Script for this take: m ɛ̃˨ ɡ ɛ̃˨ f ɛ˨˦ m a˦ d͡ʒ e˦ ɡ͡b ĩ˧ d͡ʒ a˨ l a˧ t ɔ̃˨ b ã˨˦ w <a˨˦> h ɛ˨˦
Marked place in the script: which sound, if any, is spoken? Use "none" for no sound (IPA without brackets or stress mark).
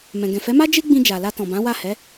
a˦˨